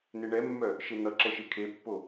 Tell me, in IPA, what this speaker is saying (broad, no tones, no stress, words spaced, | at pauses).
neɳɛmːœ | ʃen̪ʌǁɛʃ ekʰepːo